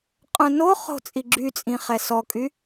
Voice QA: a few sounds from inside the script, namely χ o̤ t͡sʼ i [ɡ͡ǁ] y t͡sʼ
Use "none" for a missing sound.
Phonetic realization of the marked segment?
ɡ͡ǁ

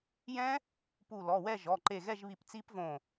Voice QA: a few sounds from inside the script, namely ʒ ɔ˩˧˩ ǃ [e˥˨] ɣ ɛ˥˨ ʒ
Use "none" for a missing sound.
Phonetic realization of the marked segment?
e˧˩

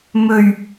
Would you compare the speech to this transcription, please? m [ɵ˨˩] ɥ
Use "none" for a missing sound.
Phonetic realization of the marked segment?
ɵ˨˩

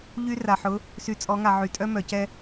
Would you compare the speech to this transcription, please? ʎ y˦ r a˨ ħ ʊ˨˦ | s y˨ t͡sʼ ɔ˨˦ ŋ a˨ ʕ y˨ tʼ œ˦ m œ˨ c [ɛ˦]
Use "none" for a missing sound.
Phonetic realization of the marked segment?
ɛ˦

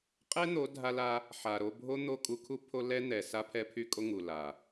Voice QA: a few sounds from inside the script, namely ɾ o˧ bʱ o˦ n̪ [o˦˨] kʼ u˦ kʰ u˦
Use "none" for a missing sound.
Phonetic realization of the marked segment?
o˦˨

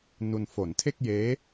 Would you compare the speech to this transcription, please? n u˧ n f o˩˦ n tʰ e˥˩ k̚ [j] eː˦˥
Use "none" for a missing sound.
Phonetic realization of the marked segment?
j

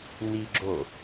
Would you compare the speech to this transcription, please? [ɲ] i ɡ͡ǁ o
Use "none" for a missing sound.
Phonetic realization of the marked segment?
n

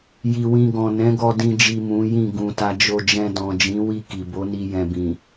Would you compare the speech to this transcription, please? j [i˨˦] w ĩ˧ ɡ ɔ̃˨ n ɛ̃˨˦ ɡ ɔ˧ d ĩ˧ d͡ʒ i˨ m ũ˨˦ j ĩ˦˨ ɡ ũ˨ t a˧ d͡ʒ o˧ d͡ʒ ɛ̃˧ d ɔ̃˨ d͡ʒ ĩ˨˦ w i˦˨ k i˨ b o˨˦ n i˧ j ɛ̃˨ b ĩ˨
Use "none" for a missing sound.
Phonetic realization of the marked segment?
i˨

